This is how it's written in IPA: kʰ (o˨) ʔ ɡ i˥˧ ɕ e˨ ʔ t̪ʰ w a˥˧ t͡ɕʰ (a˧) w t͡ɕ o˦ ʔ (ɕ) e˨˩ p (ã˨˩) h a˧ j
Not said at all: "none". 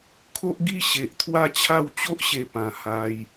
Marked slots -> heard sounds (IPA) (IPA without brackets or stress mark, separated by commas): o˦, a˥˧, ɕ, ã˨˩